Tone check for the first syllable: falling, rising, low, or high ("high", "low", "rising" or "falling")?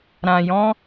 low